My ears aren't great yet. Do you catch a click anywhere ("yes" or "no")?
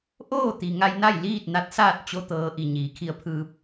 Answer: no